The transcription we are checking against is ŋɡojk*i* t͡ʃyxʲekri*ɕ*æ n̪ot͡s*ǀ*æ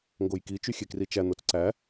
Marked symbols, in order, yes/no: yes, no, yes

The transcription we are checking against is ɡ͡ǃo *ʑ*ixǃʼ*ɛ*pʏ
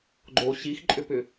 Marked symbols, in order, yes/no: no, no

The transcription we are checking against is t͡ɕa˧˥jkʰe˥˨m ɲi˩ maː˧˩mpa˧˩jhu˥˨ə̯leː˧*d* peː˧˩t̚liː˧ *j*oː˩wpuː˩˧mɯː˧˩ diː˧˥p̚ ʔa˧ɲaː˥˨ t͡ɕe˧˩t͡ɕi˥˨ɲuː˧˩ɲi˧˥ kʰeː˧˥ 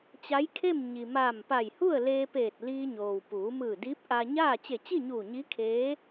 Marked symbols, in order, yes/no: no, no

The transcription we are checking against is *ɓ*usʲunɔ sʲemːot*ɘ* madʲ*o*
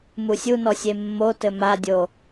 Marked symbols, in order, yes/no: no, yes, yes

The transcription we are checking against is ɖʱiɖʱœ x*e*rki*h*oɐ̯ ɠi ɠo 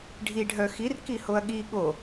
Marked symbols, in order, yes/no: no, yes

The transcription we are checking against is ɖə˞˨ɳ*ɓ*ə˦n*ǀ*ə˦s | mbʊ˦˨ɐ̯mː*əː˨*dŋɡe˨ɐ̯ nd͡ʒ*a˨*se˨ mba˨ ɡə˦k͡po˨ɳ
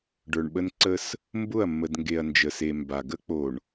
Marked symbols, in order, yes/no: yes, yes, no, no

